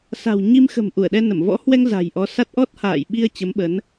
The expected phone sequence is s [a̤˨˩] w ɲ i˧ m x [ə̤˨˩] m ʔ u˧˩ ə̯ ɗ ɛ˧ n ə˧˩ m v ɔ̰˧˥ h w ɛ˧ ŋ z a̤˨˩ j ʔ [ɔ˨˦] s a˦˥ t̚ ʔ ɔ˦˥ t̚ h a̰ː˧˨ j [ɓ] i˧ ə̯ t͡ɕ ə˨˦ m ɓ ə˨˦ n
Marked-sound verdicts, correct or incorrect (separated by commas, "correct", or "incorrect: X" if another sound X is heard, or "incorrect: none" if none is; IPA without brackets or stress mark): correct, correct, correct, correct